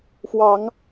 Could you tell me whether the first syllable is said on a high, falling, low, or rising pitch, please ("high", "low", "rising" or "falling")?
rising